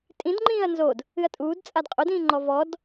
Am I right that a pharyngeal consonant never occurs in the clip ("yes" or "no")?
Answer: yes